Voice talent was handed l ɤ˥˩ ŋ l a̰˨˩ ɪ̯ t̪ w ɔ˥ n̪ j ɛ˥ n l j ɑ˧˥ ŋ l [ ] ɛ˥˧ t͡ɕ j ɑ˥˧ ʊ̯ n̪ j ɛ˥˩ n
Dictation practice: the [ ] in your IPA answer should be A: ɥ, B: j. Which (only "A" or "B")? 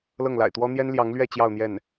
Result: A